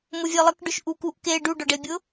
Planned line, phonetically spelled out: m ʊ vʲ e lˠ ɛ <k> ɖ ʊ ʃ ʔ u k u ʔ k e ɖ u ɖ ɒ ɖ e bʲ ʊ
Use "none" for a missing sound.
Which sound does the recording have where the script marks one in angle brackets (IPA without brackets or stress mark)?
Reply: k